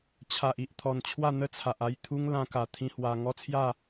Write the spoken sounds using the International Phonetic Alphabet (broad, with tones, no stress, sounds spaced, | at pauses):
t͡ɕʰ a˨ ʔ i˨ ʔ t̪ʰ ɔ˨˩ n t͡ɕʰ w a˥˧ n̪ ə˥˧ t͡sʰ a˨ ʔ a˥˧ j t̪ʰ u˦ ŋ l ã˧ k a˨˩ t̪ʰ ĩ˧ h w a˧ ŋ ɔ˦ t͡sʰ j a˥˧